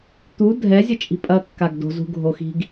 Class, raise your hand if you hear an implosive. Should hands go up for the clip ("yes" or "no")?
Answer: no